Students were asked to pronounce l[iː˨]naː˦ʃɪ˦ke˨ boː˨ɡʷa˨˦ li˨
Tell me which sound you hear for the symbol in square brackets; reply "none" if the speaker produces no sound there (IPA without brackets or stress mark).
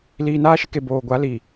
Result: iː˨